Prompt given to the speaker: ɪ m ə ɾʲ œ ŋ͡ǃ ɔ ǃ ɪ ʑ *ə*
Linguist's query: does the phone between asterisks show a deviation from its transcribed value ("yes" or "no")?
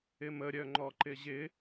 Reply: yes